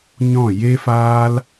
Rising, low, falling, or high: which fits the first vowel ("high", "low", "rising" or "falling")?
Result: falling